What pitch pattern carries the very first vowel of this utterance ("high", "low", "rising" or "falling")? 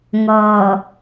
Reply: low